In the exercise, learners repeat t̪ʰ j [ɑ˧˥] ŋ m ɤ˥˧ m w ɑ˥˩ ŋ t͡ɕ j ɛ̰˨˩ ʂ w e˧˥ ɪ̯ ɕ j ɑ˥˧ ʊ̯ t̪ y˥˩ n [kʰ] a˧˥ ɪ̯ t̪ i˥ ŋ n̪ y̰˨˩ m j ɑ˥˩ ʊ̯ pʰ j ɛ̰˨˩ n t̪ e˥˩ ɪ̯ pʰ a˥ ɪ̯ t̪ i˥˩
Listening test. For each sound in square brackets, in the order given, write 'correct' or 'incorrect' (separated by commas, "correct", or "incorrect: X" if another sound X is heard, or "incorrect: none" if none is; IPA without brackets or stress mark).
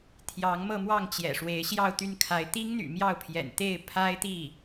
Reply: correct, correct